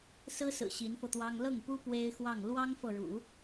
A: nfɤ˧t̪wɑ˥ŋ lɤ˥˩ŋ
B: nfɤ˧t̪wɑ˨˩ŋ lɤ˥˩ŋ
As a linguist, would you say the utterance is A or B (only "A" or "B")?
A